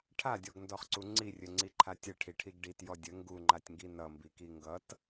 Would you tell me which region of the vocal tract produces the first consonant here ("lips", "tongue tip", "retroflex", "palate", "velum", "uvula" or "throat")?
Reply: retroflex